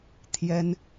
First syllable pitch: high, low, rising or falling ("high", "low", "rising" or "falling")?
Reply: high